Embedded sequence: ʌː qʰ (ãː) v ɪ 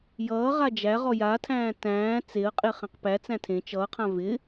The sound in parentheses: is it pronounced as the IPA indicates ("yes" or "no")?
no